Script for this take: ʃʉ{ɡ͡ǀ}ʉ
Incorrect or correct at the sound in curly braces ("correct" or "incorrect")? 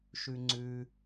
incorrect